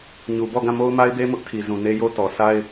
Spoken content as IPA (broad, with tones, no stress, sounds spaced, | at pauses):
ɲ u˨ b ɔ˦˨ ɡ ã˦˨ m o˦ ʊ̯ m a˦ ɪ̯ b e˦ m ʊ˦ ʔ tʰ i˨ z ũ˨ n e˦ j o˦ t ɔ˨ sʰ a˦ ɪ̯